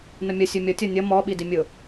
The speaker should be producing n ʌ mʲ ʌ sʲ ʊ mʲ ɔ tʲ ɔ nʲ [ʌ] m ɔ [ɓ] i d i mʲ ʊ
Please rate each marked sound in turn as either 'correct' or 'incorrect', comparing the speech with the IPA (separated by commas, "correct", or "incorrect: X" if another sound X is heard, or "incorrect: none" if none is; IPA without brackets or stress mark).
correct, correct